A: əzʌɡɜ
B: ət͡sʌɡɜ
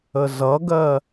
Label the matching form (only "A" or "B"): A